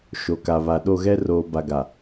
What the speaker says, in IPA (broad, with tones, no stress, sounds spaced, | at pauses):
ʃ o˨ k a˨ β a˨ ɗ o˦˨ ɣ ɛ˦ r oː˨ b a˨ ɡ a˨